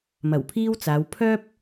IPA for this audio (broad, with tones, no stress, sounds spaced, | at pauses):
m ɐ˨˩ w pʰ iː˥ w t͡s aː˨˧ w pʰ œː˥ p̚